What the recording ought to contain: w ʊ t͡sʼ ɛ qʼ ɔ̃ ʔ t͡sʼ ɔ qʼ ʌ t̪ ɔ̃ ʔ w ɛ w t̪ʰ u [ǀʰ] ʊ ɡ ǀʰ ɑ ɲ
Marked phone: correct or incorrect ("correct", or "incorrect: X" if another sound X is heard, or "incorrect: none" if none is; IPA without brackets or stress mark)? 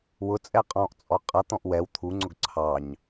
incorrect: ŋ͡ǀ